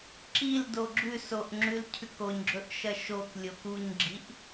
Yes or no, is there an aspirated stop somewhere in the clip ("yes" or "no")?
yes